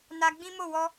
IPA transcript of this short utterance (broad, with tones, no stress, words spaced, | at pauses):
na˧ɡ͡bĩ˦mo˦˨ wɔ˧